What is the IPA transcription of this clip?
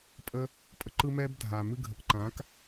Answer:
pʼ ə˦ | pʼ ə˧ ǃ ɯ˦ m ɛ˦ b dʱ aː˨ m ɨ˧ ɡʱ ə˨ k ǃ ã˨˦ k

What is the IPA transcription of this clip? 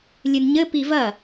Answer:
lʲ ɨ n ɲ ɘ p i v ɐ

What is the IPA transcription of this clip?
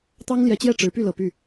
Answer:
t̪ ɑ˥ ŋ l j ɛ˧˥ t͡ɕ j ɛ˥˩ ʈ͡ʂ ɻ̩˧˥ p y˥˩ l ɤ˨˩ p y˥˩

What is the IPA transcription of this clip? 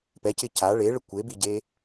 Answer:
p ɛ c ɪ c a ɭ e ɭ ə kʷ e b i ɟ e

